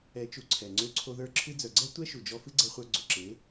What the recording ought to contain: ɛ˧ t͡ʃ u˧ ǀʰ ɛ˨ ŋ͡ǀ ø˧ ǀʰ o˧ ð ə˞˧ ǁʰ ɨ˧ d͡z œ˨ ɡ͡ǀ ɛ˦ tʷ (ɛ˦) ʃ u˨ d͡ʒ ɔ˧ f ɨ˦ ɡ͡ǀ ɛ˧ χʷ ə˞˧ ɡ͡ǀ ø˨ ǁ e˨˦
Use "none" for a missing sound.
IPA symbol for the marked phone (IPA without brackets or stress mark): ɛ˦